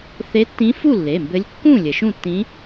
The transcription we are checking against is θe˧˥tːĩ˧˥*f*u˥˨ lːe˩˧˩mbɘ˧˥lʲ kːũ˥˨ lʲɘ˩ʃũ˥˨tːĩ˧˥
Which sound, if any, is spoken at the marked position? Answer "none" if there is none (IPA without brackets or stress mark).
f